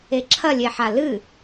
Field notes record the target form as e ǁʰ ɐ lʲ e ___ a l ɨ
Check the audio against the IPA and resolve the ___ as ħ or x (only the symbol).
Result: ħ